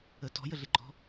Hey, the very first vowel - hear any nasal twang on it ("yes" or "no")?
no